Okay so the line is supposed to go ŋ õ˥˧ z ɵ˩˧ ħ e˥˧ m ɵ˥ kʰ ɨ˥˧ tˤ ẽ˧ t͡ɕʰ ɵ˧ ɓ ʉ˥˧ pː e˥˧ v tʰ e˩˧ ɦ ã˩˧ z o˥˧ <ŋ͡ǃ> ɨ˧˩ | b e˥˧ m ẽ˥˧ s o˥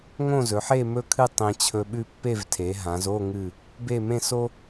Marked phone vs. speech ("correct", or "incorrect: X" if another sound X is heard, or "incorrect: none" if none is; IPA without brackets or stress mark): incorrect: ŋ